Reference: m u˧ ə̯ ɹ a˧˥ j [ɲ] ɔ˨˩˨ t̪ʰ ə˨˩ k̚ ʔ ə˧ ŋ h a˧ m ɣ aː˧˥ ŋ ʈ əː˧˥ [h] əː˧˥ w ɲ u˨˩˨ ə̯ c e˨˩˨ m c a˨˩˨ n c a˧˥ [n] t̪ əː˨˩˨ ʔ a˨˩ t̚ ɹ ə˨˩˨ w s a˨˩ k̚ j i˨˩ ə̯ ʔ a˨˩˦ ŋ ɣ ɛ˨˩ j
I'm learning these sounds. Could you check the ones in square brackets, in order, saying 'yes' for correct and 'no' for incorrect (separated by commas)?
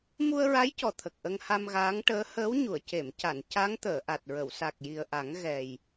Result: no, yes, no